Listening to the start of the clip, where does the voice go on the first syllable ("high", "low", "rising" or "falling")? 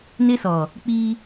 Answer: high